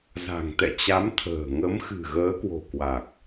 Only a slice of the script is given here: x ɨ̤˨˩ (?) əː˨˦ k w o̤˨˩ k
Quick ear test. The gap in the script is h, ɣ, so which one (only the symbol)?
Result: ɣ